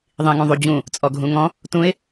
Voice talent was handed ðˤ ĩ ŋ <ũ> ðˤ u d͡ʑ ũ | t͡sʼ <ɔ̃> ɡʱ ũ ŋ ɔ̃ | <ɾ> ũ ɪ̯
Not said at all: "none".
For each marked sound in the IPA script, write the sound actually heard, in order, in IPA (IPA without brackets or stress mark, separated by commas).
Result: ũ, ɔ, t